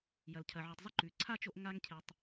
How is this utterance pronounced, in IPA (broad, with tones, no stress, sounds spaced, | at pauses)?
j ɐ˩ l cʰ ɐ˩ ʕ o˩ tˤ zˤ ɨ˧ ǃ ʉ˩ ǀʰ a˥ t͡ʃ o˧ ʔ ŋ a˧ ŋ cʰ e˩ tˤ